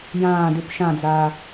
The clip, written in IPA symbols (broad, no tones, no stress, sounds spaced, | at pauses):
j ãː d ʉ p ʃ ã d͡z aː